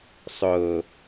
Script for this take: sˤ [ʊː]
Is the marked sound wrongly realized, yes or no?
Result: no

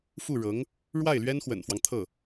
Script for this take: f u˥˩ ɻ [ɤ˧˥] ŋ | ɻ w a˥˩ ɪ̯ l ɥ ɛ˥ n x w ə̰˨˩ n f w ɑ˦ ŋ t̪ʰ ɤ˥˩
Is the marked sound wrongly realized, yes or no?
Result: no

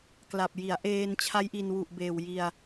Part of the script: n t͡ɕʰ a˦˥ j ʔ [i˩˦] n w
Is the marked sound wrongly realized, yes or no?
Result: yes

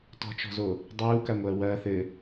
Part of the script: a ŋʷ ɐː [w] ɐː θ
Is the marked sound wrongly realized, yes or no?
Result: no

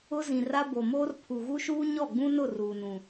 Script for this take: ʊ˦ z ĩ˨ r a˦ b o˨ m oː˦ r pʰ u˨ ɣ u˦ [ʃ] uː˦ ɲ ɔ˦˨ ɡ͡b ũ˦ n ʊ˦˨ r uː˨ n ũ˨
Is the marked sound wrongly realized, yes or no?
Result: no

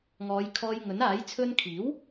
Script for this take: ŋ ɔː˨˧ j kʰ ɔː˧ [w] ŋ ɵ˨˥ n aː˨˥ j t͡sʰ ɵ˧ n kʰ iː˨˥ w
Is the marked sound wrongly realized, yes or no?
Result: yes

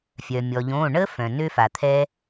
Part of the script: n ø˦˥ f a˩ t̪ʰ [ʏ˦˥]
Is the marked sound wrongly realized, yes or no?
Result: yes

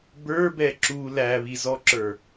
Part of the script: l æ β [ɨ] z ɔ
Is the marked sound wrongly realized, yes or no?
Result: yes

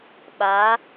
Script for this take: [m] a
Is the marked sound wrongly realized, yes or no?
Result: yes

